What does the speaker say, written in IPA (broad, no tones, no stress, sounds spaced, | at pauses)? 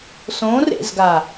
s õ r ḛ z ɡ a